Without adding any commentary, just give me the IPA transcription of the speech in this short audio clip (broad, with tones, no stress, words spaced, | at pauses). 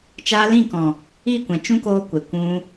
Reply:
t͡ʃaː˧lĩ˦˨kɔ̃˨ | iː˦˨kʷɛ̃˨ t͡ʃũ˦koː˧kʷe˨ kʷũ˧